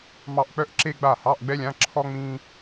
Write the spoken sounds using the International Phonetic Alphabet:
mɑ˥˩ʔk͡pœ˥ʔ ǁe˥ɡ͡ba˥˩hɑ˧˥˧ʔ ɡ͡bɛ˥lʲã˧˥˧ǁʰɔ˥ ŋ͡mĩ˥

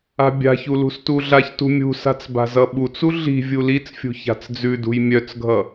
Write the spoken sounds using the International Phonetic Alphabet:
a̤bʲa̤çu lṳstuɮaçtṳ mʲṳsa̤t͡s ba̤zʌɓut͡su ɮi̤ vʲulit͡sfʲṳ ça̤t͡sd͡zʉdṳj mʲœt͡sɡʱʌ

